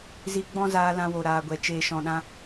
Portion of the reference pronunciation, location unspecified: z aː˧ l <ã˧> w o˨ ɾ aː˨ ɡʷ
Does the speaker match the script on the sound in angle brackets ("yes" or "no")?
yes